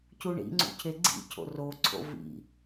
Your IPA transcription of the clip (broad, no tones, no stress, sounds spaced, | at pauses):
c u ɳ ḭ ŋ͡ǀ ṵ cʰ e ɡ͡ǀ ḭ cʰ o̰ r o ǀʰ o̰ v ḭ